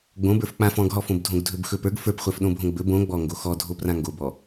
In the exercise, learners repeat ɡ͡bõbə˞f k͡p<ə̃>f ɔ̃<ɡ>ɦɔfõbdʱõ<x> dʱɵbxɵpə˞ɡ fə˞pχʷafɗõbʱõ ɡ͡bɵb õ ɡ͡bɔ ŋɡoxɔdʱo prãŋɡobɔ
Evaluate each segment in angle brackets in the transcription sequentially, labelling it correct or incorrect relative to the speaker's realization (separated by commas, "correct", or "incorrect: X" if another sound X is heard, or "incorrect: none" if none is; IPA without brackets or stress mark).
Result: incorrect: ã, correct, incorrect: ɡ